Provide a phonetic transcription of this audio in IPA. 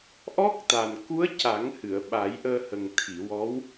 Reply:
ʔ ɔ˦˥ k̚ t̪ a˨˩ n k u˧˥ ə̯ c a˨˩˦ ŋ h ɨ˨˩˨ ə̯ ɓ aː˨˩˦ j ʔ əː˧ h ə˨˩ ŋ t̪ʰ i˨˩˨ w ɔ˧˥ w

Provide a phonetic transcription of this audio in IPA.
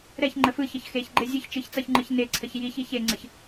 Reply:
ɾ ɛ ç ŋ͡ǃ ə f ɯ ç ʌ ç x e ç ɡ͡ǃ e zʲ ɯ ç t͡ʃ ɯ ç t͡s ʌ ç ŋ͡ǃ ɯ ç n e ǀʰ ə ç j i ç i ç e ŋ͡ǀ ə ç

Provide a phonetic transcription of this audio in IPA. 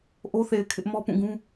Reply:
ʔ o˦ θ e˨ ɪ̯ kʰ ɪ˦ ʔ m ɔ˦ p ũ˦˨ ɡ ũ˦

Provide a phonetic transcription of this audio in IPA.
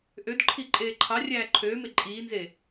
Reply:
ʔ ø d ǃʰ i ǃʼ eː ǃʰ ɑ rʲ æː ǃʰ øː m e ǃʼ iː n z e

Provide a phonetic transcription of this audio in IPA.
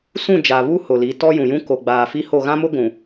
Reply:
s ũ˦˨ d͡ʒ a˨ β u˦ h ʊ˨ l i˨˦ t ɔ˦ j ũ˨ j ũ˦ k o˨ ɡ͡b aː˨ f i˦ h o˦˨ ɣ ã˦ m ʊ˦ ɡʷ ũ˨

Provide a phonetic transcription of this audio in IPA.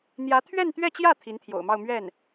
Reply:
n̪ j ä˧˥ t̪ʰ ɥ ɛ˥˧ n t̪ ɥ ɛ˥˧ t͡ɕ j ä˥˩ t̪ʰ i˧˥ n t̪ʰ j o̰˨˩ ʊ̯ m ɑ˥˧ ʊ̯ m ɥ ɛ˥˩ n

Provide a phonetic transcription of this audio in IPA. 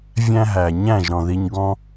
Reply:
vʲ æ̃˦ ɦ æ˨ ɲ æ̃˦˨ ʒ ɾ ɔ̃˨ ð i˧ ɲ ɡ ɔ̃˦

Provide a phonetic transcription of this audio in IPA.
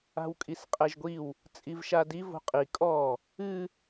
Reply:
a̤ w kʼ i s qʼ ɛ ʒ ɡʷ i w | t͡sʼ i v ʃ a d i v o̤ qʼ i kʼ ɔ | ɨ

